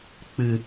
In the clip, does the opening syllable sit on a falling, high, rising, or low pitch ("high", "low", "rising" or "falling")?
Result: low